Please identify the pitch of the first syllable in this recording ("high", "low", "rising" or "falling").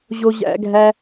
high